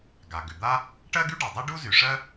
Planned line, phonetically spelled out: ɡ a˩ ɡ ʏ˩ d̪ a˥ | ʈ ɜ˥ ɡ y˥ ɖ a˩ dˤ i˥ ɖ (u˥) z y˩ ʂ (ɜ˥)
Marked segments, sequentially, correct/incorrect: correct, correct

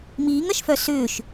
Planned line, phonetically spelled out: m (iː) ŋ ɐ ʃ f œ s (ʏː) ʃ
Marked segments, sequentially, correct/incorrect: correct, correct

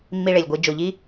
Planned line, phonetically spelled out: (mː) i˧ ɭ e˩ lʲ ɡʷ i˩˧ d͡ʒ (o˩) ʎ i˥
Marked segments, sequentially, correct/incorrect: correct, correct

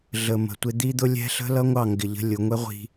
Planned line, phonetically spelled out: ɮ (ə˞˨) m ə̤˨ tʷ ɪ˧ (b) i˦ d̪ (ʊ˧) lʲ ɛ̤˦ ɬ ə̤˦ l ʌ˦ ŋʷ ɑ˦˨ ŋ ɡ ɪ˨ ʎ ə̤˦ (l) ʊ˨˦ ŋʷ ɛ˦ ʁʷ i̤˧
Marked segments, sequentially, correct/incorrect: incorrect: ə˨, incorrect: d̪, incorrect: ʊ˦, incorrect: lʲ

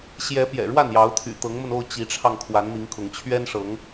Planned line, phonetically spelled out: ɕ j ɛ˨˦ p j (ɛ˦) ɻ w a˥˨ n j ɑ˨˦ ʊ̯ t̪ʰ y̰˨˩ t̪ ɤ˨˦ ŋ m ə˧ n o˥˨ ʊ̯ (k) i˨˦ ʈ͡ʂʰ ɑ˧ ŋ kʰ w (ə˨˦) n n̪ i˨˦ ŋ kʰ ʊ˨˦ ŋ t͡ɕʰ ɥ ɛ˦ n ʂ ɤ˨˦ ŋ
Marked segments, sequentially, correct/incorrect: incorrect: ɛ̰˨˩, incorrect: t͡ɕ, incorrect: a˨˦

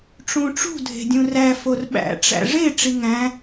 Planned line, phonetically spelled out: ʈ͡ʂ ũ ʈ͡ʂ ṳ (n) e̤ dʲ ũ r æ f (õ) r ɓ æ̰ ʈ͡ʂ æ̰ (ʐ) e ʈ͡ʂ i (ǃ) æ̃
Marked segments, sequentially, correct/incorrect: incorrect: dʱ, incorrect: o, correct, incorrect: ŋ

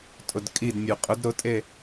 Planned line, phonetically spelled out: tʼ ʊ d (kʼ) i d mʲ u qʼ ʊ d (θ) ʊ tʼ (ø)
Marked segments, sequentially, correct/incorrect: correct, incorrect: ɾ, incorrect: e

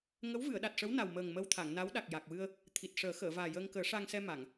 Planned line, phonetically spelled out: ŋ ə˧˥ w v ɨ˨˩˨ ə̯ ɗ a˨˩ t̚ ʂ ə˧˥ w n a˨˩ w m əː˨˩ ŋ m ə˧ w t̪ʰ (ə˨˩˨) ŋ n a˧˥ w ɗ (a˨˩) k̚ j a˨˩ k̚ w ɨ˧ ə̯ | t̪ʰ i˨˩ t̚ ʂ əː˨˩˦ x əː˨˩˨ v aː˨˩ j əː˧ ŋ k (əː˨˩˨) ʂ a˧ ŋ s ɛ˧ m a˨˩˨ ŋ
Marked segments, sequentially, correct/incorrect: incorrect: a˨˩˨, correct, incorrect: əː˨˩˦

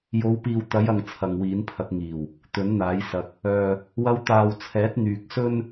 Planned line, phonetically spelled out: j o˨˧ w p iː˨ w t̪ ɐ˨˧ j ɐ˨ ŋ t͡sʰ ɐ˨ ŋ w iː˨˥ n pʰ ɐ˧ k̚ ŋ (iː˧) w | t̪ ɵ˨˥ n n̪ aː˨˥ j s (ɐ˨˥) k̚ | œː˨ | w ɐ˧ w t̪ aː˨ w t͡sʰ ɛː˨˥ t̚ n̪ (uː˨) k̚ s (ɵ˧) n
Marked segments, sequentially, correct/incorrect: incorrect: iː˨˩, incorrect: ɐ˧, incorrect: yː˨, incorrect: ɵ˥

